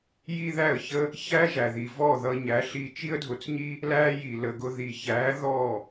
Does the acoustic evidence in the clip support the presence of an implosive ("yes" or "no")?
no